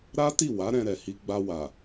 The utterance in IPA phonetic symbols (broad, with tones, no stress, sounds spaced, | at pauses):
ɾ a˦ t i˦˨ w a˨˦ ɾ ɛ̃˧ ɾ ɛ˨ h i˧ ɡ͡b a˧ w a˨